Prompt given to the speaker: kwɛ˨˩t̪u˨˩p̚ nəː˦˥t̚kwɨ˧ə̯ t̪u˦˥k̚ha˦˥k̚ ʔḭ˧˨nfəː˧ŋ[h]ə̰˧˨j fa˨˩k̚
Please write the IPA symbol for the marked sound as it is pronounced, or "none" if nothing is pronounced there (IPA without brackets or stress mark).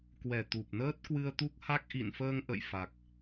ʔ